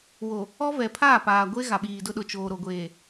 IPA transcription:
wo˨ | ɔ˦vɛ˨ pʰaː˦˨paː˨ɡʷe˦ ɣa˨ɓiː˨dʊ˦ɗʊ˨ t͡ʃoː˨ɾo˨ɡʷeː˨

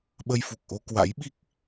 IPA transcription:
ɓə˧jfu˨˩k̚ʔo˧ kwa̰˧˥jɓi˦˥k̚

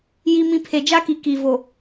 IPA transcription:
ji˦mĩ˦ pʰe˨d͡ʒa˦ki˨ ki˨vo˨

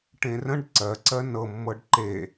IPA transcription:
ʈẽrə̃ɖ ǀɜǀɜ nɤmːɤɖ ǃe

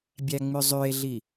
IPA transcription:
bʲæŋ͡myzˤye̯ɮi

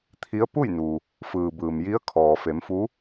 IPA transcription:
t̪ʰi˧˥ə̯ pu˥˨jnu˩ | fɯː˩bɯː˩mji˧˥ə̯ kʰɔː˩ fe˩˧mfu˧˥

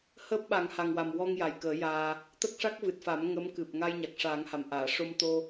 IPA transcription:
həː˦˥p̚ɓa˨˩˦ŋha˨˩ŋwa˨˩m wɔ˧ŋ ja˨˩jkəː˨˩˦jaː˧ | t̪ə˦˥k̚ʂa˦˥k̚vɨ˨˩t̚fa˨˩˦m ŋə˧˥mkɨ˨˩p̚ ŋa˧j ɲa˨˩k̚ʂaː˨˩˦ŋha˨˩m ʔaː˨˩˨ ʂo˧mt̪o˧

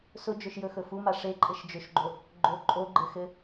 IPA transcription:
sʊd͡ʒɵʃjɵxɵ fuma ʂeǃʼɘʃ d͡ʒɵʃɡ͡ǃo | ɡ͡ǃo ǃʼoɡ͡ǃɘxɘ

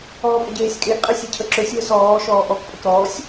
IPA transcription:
ɔːpʼɘɟeːsʲkʼeʔ qʼesʲecʰəǁøsʲ wəsɔː ʃɔːʔɔk pʼəkɾɔːsʲ

